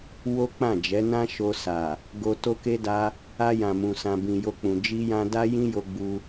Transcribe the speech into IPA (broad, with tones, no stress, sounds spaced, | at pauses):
w o˦ k͡p ã˦˨ d͡ʒ ɛ˨˦ n ã˦ ʃ o˧ s a˨ | ɡ o˧ t o˦ k e˦ d a˦ | a˧ j ã˨ m ũ˨ s ã˨ b ĩ˨ j o˧ k͡p ũ˨ d͡ʒ i˧ j ã˧ d a˦ j ĩ˦ j o˧ ɡ͡b u˧